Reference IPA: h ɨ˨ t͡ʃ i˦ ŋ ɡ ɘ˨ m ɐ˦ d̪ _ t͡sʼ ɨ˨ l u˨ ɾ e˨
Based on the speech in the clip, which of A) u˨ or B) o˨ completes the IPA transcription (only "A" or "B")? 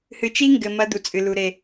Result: A